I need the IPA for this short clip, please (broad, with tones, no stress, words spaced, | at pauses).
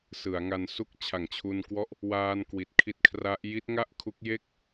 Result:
sɯ˩˦a̯ŋa˧nsu˥˩k̚ t͡ɕʰa˨˩ŋt͡ɕʰu˧nkwɔ˦˥ʔ | waː˧n kwi˨˩t̚kʰi˦˥t̚kʰra˦˥ʔ ji˦˥t̚ŋa˥˩ʔkʰu˦˥k̚ je˥˩k̚